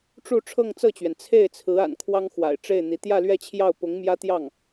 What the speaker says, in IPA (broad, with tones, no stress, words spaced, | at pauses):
ʈ͡ʂu˥˧ ʈ͡ʂʰɤ˥˧ŋt͡sɤ˥˩t͡ɕɥɛ˩n t͡sʰe˥˩ɪ̯t͡sʰɹ̩˧˥ a̰˨˩nkʰwɑ˥ŋxwa̰˨˩ɪ̯ ʈ͡ʂe˥˩ɪ̯n̪i˧˥ t̪jä˥˧lɥɛ˥˧t͡ɕʰjɑ˥˩ʊ̯ pʊ˧˥ŋmjä˥t̪jɑ˥˩ŋ